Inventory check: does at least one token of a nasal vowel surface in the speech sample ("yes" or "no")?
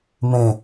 yes